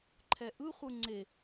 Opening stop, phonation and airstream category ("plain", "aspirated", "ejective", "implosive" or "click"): click